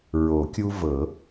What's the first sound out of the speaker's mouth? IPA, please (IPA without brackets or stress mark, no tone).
ɹ